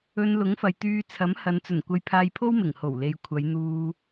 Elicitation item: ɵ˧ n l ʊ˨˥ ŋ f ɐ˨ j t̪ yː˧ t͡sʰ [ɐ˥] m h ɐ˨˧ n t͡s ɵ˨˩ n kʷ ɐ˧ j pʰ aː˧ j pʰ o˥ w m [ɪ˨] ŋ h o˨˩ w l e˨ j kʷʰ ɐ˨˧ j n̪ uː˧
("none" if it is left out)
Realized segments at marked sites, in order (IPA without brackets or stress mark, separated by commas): ɐ˨˥, ɪ˨˩